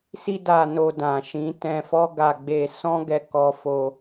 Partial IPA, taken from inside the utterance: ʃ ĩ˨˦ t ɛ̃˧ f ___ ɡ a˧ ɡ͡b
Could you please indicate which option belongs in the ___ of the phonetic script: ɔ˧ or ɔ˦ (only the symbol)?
ɔ˦